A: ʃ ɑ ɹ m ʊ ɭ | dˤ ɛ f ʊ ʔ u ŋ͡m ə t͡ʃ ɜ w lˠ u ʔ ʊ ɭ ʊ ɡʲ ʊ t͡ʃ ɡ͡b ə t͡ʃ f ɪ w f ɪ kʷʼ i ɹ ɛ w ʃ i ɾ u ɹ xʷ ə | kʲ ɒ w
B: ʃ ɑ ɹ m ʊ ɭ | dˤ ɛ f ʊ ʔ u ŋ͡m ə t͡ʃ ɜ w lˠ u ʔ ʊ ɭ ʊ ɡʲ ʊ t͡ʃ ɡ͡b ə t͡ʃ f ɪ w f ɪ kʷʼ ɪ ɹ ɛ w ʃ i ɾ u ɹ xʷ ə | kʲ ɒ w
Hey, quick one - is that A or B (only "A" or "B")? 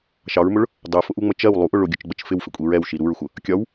A